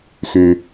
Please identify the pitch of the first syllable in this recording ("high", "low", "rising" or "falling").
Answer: low